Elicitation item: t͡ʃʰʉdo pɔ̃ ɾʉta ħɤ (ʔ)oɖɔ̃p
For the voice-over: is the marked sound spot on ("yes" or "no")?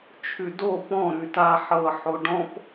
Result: no